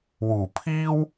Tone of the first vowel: low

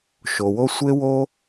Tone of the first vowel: low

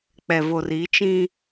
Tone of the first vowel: low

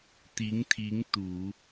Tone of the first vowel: rising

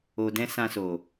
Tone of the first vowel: low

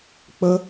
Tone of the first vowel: high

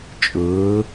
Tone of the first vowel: rising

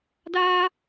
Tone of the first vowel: high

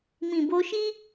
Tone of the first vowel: low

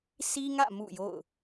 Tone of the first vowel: high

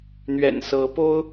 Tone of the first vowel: low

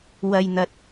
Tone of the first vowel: low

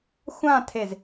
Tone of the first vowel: falling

